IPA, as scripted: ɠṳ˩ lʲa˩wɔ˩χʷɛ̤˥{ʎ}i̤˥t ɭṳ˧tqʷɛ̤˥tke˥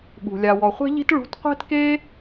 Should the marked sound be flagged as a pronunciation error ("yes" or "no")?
no